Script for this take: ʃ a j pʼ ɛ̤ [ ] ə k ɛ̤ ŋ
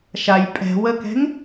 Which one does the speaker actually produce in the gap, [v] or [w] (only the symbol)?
w